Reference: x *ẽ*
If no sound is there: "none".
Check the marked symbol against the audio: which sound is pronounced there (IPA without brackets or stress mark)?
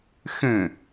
ẽ